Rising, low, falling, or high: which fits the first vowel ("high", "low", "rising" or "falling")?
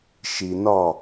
low